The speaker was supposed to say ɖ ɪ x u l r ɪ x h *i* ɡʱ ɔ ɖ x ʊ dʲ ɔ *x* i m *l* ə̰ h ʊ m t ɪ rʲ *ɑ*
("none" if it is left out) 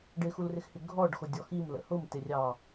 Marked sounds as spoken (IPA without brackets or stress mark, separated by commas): ɪ, x, l, ɑ